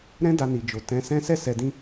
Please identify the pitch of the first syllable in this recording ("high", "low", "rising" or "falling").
high